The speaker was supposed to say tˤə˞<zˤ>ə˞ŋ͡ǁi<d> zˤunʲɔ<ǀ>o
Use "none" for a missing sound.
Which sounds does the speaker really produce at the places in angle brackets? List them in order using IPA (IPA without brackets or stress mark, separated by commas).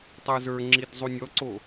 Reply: z, d, ǀ